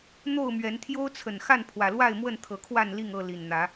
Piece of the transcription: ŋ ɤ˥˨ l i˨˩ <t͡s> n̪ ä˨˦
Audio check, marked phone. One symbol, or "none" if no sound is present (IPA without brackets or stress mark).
n